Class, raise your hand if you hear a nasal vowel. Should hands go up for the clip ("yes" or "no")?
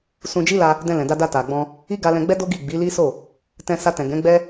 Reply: yes